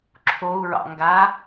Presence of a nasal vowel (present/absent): absent